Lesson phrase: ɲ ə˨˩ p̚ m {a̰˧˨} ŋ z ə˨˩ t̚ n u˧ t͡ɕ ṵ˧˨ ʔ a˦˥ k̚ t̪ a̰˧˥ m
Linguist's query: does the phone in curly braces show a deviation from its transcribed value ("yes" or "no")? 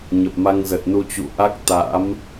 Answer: yes